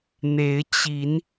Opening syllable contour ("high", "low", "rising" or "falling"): rising